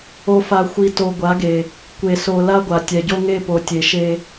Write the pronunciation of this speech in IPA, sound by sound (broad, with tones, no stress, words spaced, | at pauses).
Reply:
o˨fa˨xʷi˨ to˨ ɡʷa˨˦ɡe˨ | kʷe˨so˨ la˦ɡʷa˨ tʲɛ˨ɟo˦ŋe˦˨ po˨tʲe˨ ʃe˦